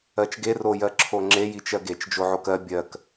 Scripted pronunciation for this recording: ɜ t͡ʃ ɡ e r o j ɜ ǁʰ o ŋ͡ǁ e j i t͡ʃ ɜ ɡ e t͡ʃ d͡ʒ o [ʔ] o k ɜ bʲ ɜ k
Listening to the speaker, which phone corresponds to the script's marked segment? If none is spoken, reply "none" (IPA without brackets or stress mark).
ʕ